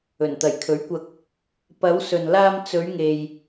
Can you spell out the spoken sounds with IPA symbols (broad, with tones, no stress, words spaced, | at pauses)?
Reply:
ɵ˨˩nt̪ɐ˨˩jkʰɵ˨˥ɥkʷɐ˧k̚ | pɐ˨˧wsɵ˨nlaː˧m t͡sɵ˨˧ɥŋe˨j